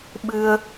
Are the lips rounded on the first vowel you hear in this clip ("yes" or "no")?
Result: no